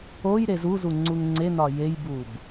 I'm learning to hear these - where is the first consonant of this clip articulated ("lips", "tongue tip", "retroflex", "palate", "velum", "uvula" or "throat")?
palate